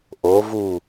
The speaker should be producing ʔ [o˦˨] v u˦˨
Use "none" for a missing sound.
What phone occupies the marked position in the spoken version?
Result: o˨˦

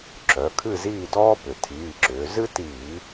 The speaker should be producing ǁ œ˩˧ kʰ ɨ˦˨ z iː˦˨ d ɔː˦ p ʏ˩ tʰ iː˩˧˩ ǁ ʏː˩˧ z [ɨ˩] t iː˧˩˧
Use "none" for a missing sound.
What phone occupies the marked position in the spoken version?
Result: ɨ˦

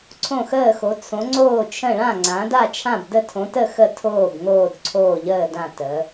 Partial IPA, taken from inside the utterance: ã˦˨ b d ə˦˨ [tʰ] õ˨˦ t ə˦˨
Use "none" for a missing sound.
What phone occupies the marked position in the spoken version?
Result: tʰ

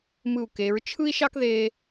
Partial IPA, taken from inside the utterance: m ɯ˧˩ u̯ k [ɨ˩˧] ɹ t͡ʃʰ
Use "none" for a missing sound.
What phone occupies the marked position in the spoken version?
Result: e˩˧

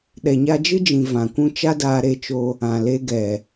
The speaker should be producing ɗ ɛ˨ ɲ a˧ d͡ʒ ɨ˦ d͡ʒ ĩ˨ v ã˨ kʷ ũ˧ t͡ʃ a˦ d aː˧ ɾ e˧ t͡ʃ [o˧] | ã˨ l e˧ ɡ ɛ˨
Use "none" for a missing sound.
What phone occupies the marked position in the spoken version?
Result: o˧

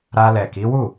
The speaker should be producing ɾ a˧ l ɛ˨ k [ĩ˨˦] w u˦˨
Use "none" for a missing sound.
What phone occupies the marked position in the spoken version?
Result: i˨˦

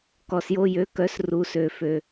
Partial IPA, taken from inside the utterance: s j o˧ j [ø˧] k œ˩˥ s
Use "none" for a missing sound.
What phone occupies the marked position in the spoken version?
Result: ø˩˥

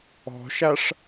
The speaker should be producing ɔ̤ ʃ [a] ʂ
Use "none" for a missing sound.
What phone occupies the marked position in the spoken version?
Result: a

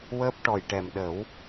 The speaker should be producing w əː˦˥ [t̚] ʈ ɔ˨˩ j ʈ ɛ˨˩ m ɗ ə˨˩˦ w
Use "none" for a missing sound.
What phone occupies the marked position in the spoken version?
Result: p̚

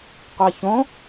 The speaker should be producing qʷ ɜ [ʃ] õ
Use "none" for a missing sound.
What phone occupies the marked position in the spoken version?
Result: ç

